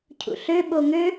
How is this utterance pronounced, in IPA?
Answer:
cʰ ṵ ɬ ø ɓ o ŋ ø

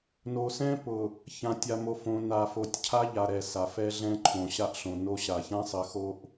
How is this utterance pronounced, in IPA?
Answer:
n o˨ s ɛ̃˦ p ʊ˨ | ç ã˨ tʲ a˨ m o˨ f õ˨ n a˨ f o˨ tʲ cʰ a˦ ʎ a˨ ɾ ɛ˨ s a˨ f ɛ˦ ɮ ɛ̃˦ ǃʰ õ˨ ɕ a˦ ʔ ɬ õ˨ n o˦ ɕ a˨ ç ã˦ sˤ ɘ˨˦ x o˦ ʔ

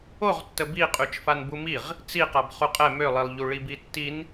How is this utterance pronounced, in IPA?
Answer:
o ʁ tː ə b i qʼ y t͡ʃ f a n b u m i ʁ | t͡s i q a b χ u qʼ ɛ m ø lˠ i lˠ ʎ u ɭ i b i tː i n

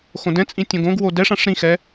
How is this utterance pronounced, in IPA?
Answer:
x õ d ɛ̃ t͡sʼ ĩ tʲ õ ɡ õ ɡ w o d ɛ ʂ ã ʂ ɾ ĩ x ɛ

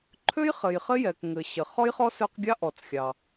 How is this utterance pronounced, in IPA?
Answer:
ǃʰ ø˥ j χ ɘ˩ j χ ɘ˥ j ɛ˩ k ŋ ɘ˩ ɕ ɘ˩ χ ɔ˥ j χ ɔ˥ s ø˥ q ɡʲ ɑ˥ ʔ ɔ˩ t͡s xʲ ɑ˩

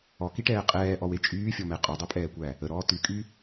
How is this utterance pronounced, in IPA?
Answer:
ɔ k i ʈ ɛː qʼ ɛː ʔ ɔ w e t͡ʃʼ yː fʲ ɔ m ɛ qʼ ɔ dˤ e pʼ ɛː kʷ æ | ə ɾ ɔː t y kʼ y

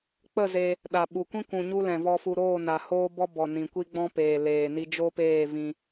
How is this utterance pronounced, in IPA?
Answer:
k͡p ə˦˨ z e˧ | ɗ a˨ ɓ u˨ kʷ ĩ˦ kʷ ũ˨ ɲ u˦ l ɛ̃˨ v ɔ˧ f u˧ ɾ oː˦˨ n a˨ h oː˦ b ɔ˦ b ɔ˨ n ĩ˨ kʷ i˦ ɡ͡b ɔ̃˦ p eː˨ l eː˨ n i˧ d͡ʒ o˦ p eː˦˨ v ĩ˧

